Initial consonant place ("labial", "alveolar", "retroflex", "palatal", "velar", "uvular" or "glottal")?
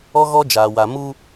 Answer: velar